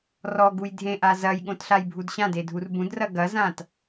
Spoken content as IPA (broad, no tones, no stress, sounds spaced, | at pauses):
r ɔ ɡ u j dʱ ẽ ʔ a z ɐ j ɠ õ t ɬ a j bʱ u d ɕ ã d e dʱ u r b ũ d r ɐ ɡ ɐ z ã t